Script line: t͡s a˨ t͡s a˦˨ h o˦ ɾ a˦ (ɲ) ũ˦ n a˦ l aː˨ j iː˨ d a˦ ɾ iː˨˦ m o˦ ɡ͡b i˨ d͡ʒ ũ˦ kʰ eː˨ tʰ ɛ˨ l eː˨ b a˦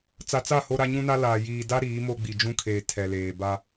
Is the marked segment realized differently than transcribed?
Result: no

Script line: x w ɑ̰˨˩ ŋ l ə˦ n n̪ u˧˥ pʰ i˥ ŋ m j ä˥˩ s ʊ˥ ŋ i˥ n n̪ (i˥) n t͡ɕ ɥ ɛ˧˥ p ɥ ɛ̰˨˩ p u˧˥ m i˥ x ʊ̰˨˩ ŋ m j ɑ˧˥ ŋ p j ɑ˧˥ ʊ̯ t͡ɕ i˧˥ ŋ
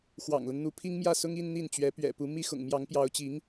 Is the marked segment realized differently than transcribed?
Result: yes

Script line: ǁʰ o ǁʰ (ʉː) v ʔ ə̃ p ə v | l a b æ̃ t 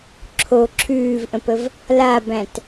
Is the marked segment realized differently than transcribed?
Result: no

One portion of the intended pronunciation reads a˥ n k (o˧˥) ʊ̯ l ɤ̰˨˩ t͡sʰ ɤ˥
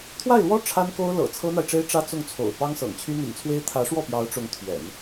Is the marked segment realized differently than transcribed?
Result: yes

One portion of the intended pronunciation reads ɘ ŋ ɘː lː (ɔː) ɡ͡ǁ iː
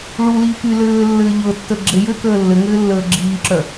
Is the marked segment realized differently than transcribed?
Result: yes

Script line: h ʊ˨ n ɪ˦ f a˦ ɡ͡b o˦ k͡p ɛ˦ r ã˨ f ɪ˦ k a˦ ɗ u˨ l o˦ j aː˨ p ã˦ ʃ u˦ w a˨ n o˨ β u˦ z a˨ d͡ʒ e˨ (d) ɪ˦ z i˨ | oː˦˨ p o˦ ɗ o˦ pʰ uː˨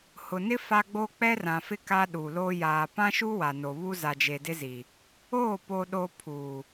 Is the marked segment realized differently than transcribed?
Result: no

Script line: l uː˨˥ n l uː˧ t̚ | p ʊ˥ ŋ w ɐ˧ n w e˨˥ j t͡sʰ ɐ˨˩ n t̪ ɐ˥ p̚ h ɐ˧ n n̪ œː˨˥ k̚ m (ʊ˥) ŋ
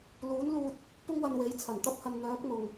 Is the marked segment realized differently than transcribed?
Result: yes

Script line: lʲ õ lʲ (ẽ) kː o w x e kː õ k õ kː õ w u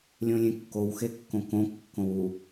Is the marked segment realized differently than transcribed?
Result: no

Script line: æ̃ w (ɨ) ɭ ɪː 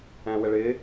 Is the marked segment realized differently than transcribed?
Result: yes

